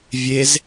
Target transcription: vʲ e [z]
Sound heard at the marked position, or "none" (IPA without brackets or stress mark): z